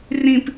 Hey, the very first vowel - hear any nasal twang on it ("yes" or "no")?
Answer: yes